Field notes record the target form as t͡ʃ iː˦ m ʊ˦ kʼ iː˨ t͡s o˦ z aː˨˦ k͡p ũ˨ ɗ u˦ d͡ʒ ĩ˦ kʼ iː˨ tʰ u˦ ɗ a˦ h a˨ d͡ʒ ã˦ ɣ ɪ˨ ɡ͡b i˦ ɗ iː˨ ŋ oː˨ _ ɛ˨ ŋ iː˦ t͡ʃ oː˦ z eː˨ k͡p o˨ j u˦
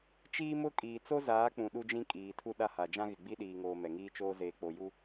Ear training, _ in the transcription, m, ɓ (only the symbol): m